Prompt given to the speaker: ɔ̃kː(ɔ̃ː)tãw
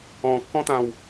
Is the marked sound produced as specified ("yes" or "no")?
no